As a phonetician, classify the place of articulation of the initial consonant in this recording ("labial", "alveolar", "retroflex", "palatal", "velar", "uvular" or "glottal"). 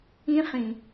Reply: uvular